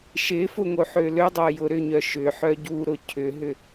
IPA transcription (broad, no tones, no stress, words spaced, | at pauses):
ʃɪfʊ ŋoħølødˤo jʊɾʏɲœ ʃʏħœ ɟuɾʊ cʰʏɦʏ